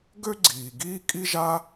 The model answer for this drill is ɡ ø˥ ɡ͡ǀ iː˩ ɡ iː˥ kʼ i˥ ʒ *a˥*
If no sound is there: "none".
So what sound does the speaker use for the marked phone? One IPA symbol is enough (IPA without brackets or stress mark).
a˥